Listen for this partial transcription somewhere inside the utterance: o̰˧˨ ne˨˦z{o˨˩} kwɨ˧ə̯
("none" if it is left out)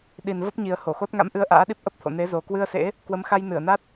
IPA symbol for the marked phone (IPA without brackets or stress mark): o˨˩